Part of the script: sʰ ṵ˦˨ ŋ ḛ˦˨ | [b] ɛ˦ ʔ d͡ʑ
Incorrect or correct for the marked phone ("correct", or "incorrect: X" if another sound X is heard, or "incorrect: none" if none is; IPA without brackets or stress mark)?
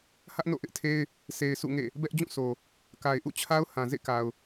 correct